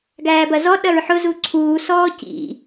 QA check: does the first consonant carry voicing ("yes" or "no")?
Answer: yes